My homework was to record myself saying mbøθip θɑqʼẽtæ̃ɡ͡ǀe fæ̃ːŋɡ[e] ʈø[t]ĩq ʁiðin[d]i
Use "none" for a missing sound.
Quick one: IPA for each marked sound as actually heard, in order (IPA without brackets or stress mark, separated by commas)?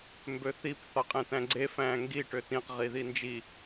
i, t, d͡ʒ